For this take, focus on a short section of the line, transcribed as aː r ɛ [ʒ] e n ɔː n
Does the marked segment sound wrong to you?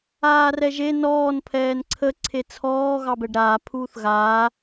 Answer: no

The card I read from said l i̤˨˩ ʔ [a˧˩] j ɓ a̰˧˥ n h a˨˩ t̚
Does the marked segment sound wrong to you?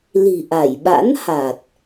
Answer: no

